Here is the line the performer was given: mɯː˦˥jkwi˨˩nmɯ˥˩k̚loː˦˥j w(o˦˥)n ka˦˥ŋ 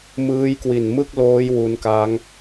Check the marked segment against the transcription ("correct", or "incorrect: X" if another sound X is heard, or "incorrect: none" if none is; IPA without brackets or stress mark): incorrect: u˦˥